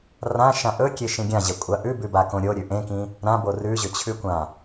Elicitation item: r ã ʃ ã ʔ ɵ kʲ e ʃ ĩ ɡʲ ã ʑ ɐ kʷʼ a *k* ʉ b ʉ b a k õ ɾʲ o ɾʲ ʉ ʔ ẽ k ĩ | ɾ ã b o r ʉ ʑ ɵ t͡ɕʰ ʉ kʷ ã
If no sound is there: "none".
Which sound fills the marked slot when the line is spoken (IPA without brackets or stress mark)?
ʔ